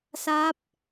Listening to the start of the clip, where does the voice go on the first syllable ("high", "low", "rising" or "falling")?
rising